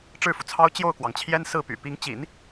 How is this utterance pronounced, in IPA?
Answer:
ʈ͡ʂɻ̩˥˩fu˩t͡sʰɑ˥ʊ̯ t͡ɕjo˥˩ʊ̯kwɑ˩ŋt͡ɕʰjɛ˥n sɹ̩˥˩py̰˨˩ pi˧˥ŋt͡ɕḭ˨˩˦n

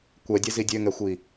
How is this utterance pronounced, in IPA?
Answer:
kʷɛdʲɛzi dʲøŋɛxʷi

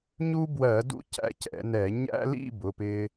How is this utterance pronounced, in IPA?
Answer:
ɲu˦bwɜ˧˩˧ dṵ˦cæ̰˨˦ cɛ̰˧˩˧nɛ˧˩˧ ɲæ̰˦lḭ˥˨ bʊ˩˧˩pɪ˦

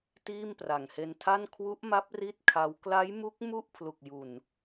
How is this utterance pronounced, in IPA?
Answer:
tiː˥˩mpra˨˩ŋhe˧ntʰa˥˩n kʰwu˦˥ʔma˦˥p̚ ri˥˩t̚kʰa˦˥w kla˦˥jmu˦˥k̚ mu˥˩ʔ pʰlu˨˩k̚ju˨˩n

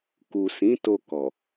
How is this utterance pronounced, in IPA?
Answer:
ku˨sĩ˨˦ to˧kɔ˨

